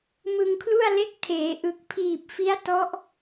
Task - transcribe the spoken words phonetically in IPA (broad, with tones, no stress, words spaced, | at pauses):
mɯ˧ŋkʰlu˥˩a̯ le˦˥k̚tʰeː˩˦ ʔɯ˨˩k̚pʰiː˨˩p̚fi˦˥a̯ tɔ˦˥ʔ